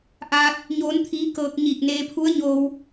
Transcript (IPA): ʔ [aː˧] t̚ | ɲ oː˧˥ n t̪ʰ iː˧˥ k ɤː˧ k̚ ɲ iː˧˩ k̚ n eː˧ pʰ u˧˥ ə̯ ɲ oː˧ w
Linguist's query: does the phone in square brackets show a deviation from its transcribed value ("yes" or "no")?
no